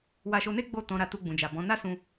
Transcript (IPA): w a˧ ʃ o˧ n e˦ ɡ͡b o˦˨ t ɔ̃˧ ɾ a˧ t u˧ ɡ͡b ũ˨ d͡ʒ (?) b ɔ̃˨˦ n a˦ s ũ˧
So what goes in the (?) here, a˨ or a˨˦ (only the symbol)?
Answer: a˨